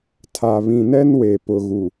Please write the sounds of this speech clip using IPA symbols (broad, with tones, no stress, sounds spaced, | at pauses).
tʰ a˨ β ĩ˨ n ɛ˦ n w e˨ p ʊ˨ ɣ u˨